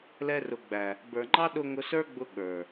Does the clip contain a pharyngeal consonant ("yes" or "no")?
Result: no